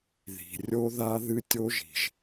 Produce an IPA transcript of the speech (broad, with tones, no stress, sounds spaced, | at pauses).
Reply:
ð i̤˨ rʲ o˦ ð a˦ ð ɨ˦ tʲ o˦ ʒ i̤˨ ʒ